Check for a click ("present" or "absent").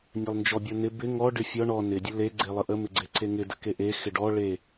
present